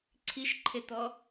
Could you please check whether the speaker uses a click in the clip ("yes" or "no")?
yes